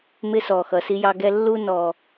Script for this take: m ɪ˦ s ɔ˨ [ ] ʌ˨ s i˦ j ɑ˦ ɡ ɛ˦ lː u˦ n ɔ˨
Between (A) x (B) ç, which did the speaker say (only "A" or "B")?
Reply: A